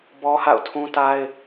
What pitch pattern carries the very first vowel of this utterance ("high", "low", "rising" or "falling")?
high